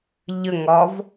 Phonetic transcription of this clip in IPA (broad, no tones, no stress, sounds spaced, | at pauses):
ʎ ə ŋ ɒ v